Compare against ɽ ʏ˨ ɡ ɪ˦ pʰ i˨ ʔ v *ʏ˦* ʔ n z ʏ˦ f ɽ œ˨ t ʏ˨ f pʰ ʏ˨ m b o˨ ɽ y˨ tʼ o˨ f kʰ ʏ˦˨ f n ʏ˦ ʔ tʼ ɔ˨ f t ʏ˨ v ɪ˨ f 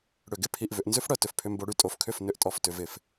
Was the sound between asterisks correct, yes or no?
no